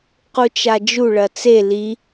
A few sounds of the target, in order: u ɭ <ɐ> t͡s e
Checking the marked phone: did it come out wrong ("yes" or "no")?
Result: no